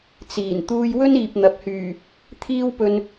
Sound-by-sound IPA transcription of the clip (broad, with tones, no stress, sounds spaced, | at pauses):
t͡s iː˨˩ n t̪ uː˧ j w ɵ˥ n iː˨ p̚ n̪ ɐ˨ p̚ h yː˨˩ | t̪ʰ iː˥ w p ɵ˧ n